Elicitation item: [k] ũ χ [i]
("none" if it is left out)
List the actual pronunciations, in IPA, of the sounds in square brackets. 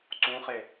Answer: ǀ, e

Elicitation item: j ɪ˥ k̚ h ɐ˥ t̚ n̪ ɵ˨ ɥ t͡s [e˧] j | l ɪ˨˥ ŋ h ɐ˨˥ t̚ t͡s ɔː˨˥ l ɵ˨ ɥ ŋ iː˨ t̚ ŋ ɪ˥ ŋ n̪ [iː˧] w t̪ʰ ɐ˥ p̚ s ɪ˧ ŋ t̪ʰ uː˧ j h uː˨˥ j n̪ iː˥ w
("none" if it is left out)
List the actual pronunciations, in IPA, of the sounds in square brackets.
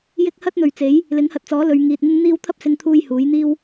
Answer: e˨˥, iː˥

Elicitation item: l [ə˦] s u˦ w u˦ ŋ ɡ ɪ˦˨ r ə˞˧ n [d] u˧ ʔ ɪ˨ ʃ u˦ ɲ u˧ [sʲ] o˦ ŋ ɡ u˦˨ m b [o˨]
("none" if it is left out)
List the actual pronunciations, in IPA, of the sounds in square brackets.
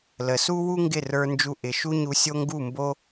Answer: ə˨, d͡ʒ, sʲ, o˦

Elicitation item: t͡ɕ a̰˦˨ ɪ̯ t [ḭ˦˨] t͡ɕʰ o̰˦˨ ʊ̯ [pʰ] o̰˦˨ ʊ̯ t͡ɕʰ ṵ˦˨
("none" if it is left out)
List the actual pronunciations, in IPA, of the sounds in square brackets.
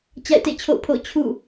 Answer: ḛ˦˨, pʰ

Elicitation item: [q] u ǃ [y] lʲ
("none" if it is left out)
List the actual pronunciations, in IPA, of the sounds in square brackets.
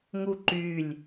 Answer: ŋ, y

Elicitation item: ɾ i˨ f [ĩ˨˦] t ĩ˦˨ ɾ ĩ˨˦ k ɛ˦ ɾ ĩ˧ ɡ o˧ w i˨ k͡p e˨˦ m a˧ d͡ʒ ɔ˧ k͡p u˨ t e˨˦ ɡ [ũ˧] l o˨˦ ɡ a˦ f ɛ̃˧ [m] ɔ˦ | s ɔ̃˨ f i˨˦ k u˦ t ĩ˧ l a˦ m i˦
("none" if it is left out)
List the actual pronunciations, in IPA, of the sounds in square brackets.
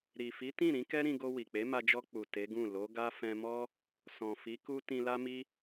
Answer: i˨˦, ũ˦˨, m

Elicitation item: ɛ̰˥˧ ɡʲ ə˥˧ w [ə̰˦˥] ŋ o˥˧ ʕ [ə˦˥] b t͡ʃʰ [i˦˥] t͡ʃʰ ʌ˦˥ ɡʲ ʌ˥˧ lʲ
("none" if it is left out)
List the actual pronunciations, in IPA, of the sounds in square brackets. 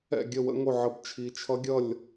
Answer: ə̰˦˥, ə˦˥, i˦˥

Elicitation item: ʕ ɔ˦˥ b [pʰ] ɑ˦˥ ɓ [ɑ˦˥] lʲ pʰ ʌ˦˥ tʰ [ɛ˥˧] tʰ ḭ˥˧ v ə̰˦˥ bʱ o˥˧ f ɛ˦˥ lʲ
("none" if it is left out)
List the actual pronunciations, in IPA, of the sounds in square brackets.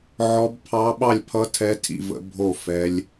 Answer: pʰ, ɑ˥˧, ɛ˦˥

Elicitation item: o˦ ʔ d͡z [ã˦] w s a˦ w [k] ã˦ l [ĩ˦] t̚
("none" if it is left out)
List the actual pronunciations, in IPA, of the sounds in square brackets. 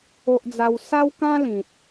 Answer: a˦, k, ĩ˨

